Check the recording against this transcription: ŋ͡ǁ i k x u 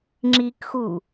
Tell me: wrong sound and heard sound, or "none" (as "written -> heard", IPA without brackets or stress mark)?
none